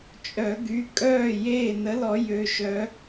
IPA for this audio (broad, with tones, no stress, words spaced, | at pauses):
t͡ʃʼœ˨˩˦ɡy˩˧˩ kʼœː˥˩jeː˥˩ nə˨˦lɔ˨˩˦ jø˩˧˩ʃœ˨˦